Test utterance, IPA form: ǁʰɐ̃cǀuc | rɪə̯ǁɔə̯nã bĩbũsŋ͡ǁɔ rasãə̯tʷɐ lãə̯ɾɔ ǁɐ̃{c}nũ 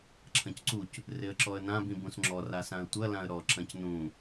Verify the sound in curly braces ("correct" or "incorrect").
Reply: correct